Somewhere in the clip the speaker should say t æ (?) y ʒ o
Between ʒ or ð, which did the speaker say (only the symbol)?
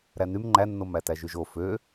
ʒ